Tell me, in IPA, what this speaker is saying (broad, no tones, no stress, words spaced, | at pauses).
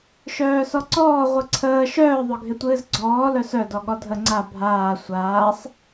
ʃœːsɔǀɔː ʁʷɨǀʰəː ʃœː ðˤœɡʱɪtʷɨːzɡ͡ǀɔː lœsœ dɔɠɔdʱə ŋ͡ǀa bʱaː sʷaːsˤ